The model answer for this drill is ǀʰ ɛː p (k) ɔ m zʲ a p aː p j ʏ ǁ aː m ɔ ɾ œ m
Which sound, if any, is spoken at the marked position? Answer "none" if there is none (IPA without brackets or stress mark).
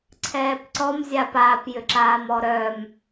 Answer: ǀ